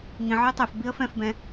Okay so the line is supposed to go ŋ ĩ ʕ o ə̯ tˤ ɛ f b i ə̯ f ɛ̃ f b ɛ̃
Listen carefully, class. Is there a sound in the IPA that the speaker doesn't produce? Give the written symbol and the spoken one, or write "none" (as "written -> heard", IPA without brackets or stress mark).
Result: none